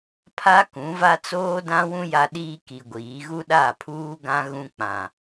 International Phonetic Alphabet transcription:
pʰ a˦ k ũ˨˦ v a˦ t͡s oː˦ d ã˦ w ũ˦ j a˦ ɗ iː˦ k i˨ ɡʷ iː˨˦ ɣ u˦ ɗ a˦˨ pʰ uː˦ ɡ ã˦ ɣ ũ˦ k͡p ã˨

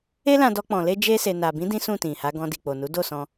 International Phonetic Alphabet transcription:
e˦ l ã˧ d ɔ˧ k͡p ɔ̃˨ l e˧ d͡ʒ e˧ s e˨ n a˨ b ĩ˨˦ d ĩ˦ s ũ˦˨ t ĩ˨ h a˨˦ ɡ ɔ̃˧ d i˨ k͡p o˨ n u˨˦ d o˦˨ s ɔ̃˧

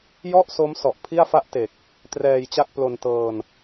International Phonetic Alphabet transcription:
j ɔ˥˩ ʔ s o˦˥ m s ɔ˨˩ ʔ pʰ i˥˩ a̯ f a˥˩ ʔ t e˨˩ k̚ | t r ɛː˧ j t͡ɕ a˥˩ k̚ p l o˧ n t ɤː˧ n

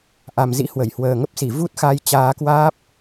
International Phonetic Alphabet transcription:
ʔ a˨˩ m z ḭ˧˥ h w ə˧˩ j h w əː˨˩ ŋ ə˦˥ p̚ s i˧˩ v u˦˥ t̚ x a˧ j t͡ɕ aː˨˦ k w aː˦˥ p̚

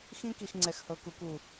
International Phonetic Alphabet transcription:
x ĩ˦ k i˨ x ŋ͡ǀ ɛ˨ x h ɤ˨ k u˨ k u˨

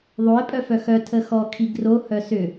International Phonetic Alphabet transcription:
ðˤ o ɪ̯ pʼ œ f œ x œ tʰ ə x ɔ kʰ i ɡ r o h œ s ʏ

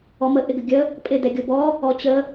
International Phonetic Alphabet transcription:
ɔ m ə ʔ ɪ ɡ ə ɡʲ ə | pʼ ɪ d ɛ ɡʲ o b ɔ | ɔ t͡ɕ ə

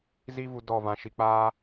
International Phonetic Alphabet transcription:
z i˦ v u˧ d ɔ˦˨ v ã˧ ʃ i˧ k͡p aː˦

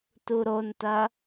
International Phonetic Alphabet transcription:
t u ɾ o n t ɐ

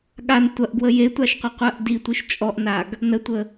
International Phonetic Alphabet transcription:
ɠ a n tʷ ɐ ʔ ɡ w ə j e tʷ a ʃ qʷ ɐ qʷ ɜ ʔ d i tʷ i ʃ t͡ʃʼ ɔ ʔ n a ɡ | n ə tʷ ə

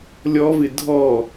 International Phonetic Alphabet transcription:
lʲ ɔ v ɪ dʱ ɔ

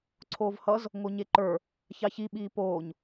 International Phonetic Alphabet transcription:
ǀʰ oː v h ʌ z | ŋ o ɲ e ǃ ə˞ | ç ɑ ç i ɓ iː p oː ɲ

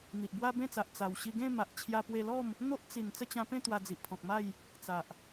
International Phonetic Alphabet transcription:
n̪ i˨ ʔ b w a˦ b ẽ˥˧ t͡s a˨ ʔ t͡s a˨˩ w ɕ i˧ ɡ ẽ˥˧ m a˨ ʔ t͡ɕʰ j a˧ p w e˧ l ɔ˥˧ m | n̪ o˦ ʔ t͡s i˨˩ n t͡s ə˥˧ t͡ɕ ã˧ p ẽ˥˧ t̪ w a˧ d͡z i˨ ʔ pʰ ɔ̃˨ k̚ m a˥˧ j | t͡s a˨ ʔ

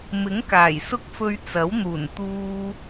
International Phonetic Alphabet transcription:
m ɪ˨˥ ŋ k aː˨˩ j s ʊ˥ k̚ f ɵ˧ ɥ t͡s ɐ˨˥ w n̪ uː˨˩ n t̪ uː˧

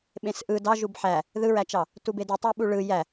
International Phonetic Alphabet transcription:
ɓ ẽ s ʔ ɯ d ɑ ʒ u b ħ æ | ð ɯ ɹ æ t͡ʃ ɑ | t u b e d u tˤ æ ɓ u ɭ ɯ j æ

